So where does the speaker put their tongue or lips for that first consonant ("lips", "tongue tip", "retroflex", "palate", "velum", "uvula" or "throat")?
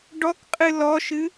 retroflex